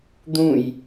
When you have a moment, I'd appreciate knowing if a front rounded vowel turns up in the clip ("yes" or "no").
no